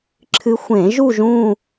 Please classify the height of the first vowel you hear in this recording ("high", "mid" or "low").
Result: high